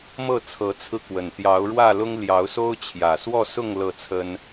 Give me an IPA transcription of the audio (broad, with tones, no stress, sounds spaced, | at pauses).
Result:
m ɤ˥˨ t͡sʰ ɤ˨˦ t͡sʰ ɹ̩˧ k w ə˨˩ n t̪ j ɑ˨˦ ʊ̯ ɻ w ä˥˨ l ʊ˦ ŋ l j ɑ˨˦ ʊ̯ s o˦ ʊ̯ t͡ɕʰ j ä˨˩ s w ɔ˥˨ s ʊ˥˨ ŋ l ɤ˥˨ t͡sʰ ə˦ n